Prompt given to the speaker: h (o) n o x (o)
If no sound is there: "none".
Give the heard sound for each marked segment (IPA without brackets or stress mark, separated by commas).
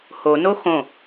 o, õ